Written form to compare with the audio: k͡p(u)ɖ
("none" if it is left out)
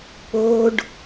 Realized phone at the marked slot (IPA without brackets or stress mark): o